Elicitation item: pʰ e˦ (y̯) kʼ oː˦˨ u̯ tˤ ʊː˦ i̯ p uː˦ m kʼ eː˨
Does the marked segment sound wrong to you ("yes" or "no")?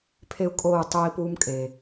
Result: yes